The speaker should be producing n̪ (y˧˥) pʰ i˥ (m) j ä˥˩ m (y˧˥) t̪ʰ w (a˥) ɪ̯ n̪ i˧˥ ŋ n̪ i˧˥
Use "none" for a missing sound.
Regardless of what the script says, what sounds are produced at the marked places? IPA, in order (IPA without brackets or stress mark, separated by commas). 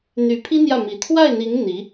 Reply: y˧˥, n̪, i˧˥, a˥˩